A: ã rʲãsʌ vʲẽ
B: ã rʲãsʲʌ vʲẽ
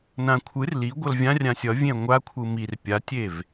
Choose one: B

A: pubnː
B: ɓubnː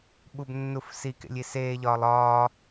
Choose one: B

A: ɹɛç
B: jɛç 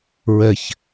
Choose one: A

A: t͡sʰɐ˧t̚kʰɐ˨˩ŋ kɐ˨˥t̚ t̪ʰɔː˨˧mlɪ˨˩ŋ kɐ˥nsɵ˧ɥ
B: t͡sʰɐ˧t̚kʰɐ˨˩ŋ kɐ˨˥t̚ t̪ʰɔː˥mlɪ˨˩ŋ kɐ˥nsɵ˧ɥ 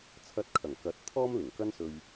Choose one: B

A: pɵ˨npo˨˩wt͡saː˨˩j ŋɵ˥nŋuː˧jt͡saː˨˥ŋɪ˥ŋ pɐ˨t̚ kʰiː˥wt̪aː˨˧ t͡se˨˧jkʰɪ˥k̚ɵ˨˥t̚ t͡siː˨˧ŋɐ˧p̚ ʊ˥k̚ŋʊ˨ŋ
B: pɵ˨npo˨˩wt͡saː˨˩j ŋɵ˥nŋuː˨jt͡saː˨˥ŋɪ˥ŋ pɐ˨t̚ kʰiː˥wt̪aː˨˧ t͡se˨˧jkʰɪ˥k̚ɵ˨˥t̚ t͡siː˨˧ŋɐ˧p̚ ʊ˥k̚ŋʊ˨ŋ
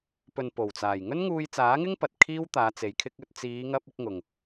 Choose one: A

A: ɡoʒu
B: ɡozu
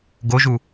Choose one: A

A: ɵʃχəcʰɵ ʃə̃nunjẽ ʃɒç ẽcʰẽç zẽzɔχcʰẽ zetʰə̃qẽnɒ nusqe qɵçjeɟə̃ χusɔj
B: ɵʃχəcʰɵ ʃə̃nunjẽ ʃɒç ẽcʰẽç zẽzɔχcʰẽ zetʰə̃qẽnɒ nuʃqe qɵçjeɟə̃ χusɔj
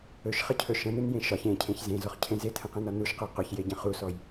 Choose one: B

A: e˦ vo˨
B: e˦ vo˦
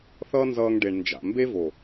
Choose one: A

